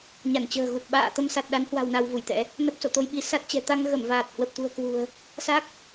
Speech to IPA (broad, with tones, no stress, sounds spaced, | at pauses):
ɲ a˧˩ n t͡ɕ ə̤ː˨˩ ɣ u˨˩ t̚ ɓ a̰ː˧˨ t̪ ə˧ m s a˨˩ t̚ ɗ a˨˦ n h w a̤˨˩ w n a˧ w v u˧˩ j t̪ ɛ̰˧˥ | n ə˦˥ p̚ s o̰˧˨ t̪ o˧ j ɓ i˨˦ s a˦˥ t̚ t͡ɕ ɛ̤˨˩ t̪ a˧ ŋ ɣ ə˧˩ m v aː˨˩ t̚ h w ə˨˩ p̚ t̪ ṳ˨˩ ə̯ k w ṳ˨˩ ə̯ | s a˦˥ k̚